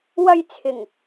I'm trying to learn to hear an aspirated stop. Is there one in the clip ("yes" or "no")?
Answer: yes